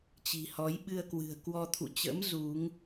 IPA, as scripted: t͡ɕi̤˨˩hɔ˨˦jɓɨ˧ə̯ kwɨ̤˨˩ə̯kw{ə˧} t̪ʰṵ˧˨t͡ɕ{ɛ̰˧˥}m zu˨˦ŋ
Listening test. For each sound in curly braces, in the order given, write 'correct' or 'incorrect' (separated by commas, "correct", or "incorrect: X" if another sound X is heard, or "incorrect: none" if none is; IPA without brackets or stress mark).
incorrect: ɔ˧, incorrect: ə̰˧˥